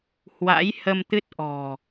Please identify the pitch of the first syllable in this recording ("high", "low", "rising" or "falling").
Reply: rising